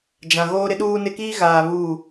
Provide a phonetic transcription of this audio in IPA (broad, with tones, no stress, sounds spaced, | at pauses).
d͡ʒ ã˨ ɣ oː˦ ɾ ɪ˦ ɗ uː˦ n ɪ˦ k iː˦ ɣ aː˨ β uː˦˨